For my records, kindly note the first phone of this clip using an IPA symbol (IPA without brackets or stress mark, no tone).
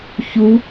ç